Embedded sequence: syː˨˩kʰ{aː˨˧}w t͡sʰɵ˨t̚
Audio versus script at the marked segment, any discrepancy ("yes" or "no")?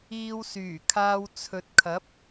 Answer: yes